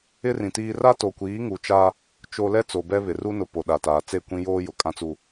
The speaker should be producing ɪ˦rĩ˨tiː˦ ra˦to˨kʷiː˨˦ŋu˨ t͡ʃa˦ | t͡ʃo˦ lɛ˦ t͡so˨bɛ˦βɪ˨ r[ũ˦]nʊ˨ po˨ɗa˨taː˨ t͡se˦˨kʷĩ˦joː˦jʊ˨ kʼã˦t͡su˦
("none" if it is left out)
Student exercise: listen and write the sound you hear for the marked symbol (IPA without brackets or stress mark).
u˦